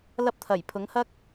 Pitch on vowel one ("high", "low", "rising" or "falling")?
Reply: high